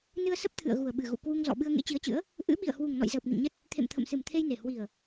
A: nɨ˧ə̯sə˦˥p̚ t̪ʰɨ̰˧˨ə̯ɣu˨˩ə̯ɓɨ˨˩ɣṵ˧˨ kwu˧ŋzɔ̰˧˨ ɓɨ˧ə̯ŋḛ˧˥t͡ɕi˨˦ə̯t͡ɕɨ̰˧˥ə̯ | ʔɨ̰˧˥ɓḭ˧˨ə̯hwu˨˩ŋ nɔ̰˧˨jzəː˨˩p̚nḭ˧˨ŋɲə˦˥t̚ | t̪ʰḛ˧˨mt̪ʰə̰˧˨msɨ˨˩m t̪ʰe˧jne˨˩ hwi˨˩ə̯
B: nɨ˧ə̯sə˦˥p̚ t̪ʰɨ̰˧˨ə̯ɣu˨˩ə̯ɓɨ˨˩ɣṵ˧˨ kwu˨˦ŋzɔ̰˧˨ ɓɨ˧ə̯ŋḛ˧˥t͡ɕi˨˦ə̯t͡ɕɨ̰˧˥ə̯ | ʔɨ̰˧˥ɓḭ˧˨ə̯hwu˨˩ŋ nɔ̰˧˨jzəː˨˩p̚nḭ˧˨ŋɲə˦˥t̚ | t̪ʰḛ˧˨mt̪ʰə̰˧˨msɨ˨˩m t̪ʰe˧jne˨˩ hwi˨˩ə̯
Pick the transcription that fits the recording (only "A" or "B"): A